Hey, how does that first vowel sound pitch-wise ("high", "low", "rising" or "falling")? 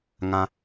high